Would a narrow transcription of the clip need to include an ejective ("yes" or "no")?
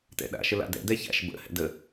no